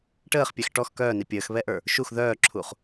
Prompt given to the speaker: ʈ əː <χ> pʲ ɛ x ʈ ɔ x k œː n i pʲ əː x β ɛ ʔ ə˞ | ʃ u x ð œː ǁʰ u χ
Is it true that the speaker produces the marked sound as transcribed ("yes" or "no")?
yes